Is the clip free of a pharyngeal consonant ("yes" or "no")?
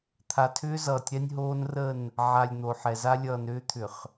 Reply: no